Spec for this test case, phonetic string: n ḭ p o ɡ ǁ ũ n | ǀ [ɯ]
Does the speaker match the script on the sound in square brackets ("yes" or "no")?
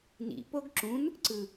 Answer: yes